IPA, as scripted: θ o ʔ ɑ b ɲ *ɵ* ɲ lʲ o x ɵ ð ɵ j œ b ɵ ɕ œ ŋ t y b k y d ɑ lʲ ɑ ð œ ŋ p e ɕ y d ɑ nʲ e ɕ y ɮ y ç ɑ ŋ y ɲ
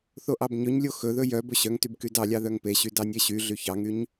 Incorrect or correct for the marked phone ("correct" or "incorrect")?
correct